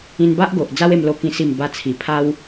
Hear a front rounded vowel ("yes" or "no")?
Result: no